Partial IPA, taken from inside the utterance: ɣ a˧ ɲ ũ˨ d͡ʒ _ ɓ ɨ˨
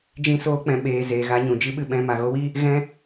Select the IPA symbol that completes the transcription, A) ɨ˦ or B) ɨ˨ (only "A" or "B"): A